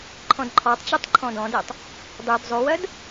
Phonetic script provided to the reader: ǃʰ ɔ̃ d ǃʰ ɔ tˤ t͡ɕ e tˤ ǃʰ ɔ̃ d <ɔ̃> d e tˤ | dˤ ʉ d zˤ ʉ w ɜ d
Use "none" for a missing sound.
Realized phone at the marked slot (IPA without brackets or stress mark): ɔ̃